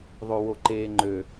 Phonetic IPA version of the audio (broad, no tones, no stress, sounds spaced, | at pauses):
ðˤ o w o ǃ eː ŋ͡ǃ ø